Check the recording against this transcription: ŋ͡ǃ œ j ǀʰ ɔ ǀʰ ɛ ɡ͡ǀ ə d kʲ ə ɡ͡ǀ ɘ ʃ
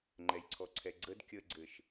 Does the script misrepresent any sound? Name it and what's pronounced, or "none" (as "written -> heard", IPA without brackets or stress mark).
œ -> ɛ